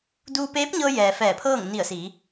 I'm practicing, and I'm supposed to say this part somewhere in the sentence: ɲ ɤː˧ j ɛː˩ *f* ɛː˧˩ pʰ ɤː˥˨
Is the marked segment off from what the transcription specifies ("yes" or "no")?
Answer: no